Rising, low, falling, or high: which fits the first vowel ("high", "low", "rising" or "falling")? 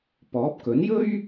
rising